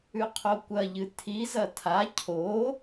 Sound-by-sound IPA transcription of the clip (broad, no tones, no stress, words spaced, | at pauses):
ʉqʰokʷɐʎɨ tʰizɐ tʰa cʰo